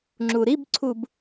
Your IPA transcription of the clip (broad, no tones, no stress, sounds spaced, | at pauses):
ŋ͡ǁ u ɾ i b ǀʰ u b